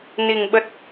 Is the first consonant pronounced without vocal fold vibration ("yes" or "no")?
no